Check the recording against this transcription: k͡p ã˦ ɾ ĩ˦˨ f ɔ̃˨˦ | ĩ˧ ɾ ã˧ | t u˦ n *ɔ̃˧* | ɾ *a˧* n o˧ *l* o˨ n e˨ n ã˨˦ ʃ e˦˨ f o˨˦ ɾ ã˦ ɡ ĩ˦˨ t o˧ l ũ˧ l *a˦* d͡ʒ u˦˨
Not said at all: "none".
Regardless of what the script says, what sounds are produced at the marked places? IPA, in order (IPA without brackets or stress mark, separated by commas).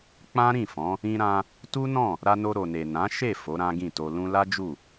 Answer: ɔ̃˦˨, a˧, ɾ, a˦